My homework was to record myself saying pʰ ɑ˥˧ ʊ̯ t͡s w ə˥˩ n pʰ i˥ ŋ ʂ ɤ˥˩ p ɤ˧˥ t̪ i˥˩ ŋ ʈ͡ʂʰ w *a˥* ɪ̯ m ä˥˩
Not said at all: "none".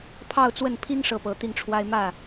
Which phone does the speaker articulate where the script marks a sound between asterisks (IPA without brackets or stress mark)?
a˥